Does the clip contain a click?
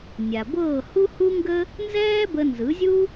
no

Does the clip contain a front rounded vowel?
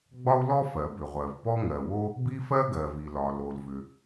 yes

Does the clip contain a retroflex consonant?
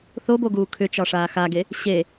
yes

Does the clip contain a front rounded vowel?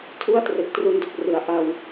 no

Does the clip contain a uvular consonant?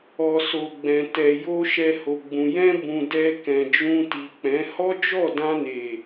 no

